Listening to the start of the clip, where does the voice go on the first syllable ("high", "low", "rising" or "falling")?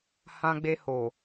high